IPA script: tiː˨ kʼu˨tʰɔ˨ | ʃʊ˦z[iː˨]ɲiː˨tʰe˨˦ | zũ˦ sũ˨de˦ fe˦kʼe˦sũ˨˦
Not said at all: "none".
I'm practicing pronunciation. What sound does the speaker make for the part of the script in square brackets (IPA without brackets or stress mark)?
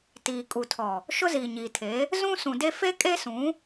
iː˨